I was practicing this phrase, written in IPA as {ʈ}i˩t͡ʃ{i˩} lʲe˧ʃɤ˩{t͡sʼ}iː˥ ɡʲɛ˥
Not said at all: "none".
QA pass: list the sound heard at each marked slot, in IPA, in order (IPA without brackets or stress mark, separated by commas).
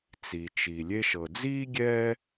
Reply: t͡s, i˩, d͡z